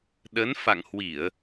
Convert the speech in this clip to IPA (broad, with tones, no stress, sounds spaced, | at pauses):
ɗ ə˨˦ n f a̰˧˨ ŋ h w i˧˩˨ ə̯